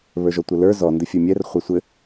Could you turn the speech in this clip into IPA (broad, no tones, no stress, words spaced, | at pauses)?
βə˞ʒɔtʷɘlə˞ zɔ ndɘfʲə˞mʲɛr χʷɐsʷɘ